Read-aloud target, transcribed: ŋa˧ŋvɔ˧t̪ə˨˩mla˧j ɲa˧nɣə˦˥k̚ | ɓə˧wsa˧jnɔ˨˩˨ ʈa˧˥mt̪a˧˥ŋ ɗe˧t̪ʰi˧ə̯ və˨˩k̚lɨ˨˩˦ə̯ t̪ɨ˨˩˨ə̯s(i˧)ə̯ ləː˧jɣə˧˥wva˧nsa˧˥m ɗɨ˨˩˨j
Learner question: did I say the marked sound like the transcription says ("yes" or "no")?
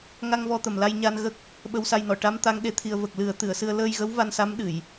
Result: no